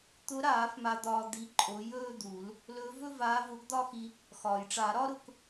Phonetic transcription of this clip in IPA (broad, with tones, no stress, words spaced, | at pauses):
t̪ʊ˨˥ɾaː˨˩˦f ma˧d̪ɒː˧ d̪i˨˥ǃʼo˨˥ jɵː˥˧d̪u˨˩˦l | lɵː˨˥vɵ˥˧vaː˨˥ vʊ˨˥ɡd̪ɒ˥˧xi˧ | xɒː˩jʈ͡ʂa˨˩˦ɾɒ˥ ɾʊ˨˥k